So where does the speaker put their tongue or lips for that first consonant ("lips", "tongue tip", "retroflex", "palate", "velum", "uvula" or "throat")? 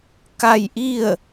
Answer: velum